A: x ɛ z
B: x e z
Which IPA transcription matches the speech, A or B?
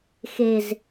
B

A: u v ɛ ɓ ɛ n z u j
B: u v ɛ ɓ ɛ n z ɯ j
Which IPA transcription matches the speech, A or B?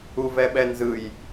B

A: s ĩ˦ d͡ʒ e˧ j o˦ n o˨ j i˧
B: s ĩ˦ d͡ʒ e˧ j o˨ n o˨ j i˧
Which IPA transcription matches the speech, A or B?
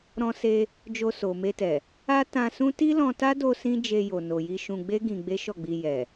B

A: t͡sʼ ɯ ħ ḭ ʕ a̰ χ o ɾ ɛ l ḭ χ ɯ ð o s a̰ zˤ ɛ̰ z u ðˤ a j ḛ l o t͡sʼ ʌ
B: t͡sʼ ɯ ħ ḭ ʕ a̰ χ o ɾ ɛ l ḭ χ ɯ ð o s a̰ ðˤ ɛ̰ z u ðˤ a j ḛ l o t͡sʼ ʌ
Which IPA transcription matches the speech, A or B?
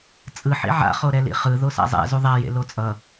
A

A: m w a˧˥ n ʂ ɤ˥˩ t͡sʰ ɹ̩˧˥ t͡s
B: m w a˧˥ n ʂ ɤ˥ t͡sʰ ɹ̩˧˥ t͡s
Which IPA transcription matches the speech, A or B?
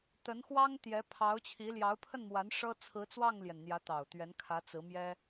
B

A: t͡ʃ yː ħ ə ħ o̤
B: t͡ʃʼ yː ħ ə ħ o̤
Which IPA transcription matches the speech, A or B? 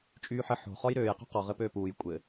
B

